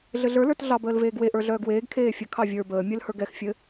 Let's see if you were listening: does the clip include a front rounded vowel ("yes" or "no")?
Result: yes